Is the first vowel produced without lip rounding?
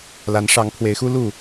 yes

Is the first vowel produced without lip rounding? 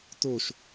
no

